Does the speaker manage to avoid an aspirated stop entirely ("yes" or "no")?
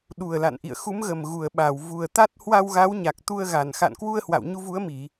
yes